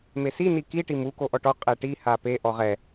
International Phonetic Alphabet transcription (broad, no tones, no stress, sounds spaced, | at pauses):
m e s i n i k i ʈ i m u k o ʔ ɔ ʈ ɔ qʼ ɛ ʈ i h a p e ʔ ɔ ʁ ɛ